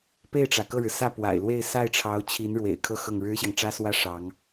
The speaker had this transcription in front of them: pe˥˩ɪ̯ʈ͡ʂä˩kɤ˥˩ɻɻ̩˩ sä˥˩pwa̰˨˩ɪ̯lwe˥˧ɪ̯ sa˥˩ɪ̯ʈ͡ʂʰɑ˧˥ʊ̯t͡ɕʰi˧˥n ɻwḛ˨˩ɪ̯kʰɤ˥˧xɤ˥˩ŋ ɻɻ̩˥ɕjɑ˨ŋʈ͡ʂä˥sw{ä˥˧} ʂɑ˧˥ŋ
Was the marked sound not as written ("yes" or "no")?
yes